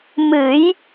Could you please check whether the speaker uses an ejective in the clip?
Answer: no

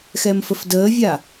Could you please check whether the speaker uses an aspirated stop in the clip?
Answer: no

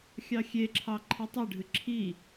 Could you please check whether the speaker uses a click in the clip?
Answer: yes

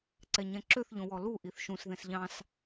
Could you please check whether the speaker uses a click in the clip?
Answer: yes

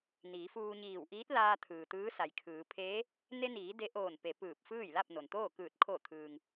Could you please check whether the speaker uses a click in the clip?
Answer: no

